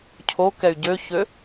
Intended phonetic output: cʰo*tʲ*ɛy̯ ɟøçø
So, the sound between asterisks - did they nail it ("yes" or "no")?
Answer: no